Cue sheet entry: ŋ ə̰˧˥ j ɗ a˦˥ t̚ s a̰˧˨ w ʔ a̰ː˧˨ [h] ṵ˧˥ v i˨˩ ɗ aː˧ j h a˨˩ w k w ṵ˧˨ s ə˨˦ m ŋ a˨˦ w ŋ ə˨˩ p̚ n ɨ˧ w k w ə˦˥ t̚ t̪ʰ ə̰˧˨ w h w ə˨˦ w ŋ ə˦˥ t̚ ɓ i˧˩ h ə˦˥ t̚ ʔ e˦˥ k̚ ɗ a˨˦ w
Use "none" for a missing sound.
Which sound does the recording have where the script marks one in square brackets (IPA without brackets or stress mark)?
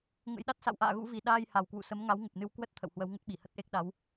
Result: ɣ